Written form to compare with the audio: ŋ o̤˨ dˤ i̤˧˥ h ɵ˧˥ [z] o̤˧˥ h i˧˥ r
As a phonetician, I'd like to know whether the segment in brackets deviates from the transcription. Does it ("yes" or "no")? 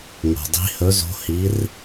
no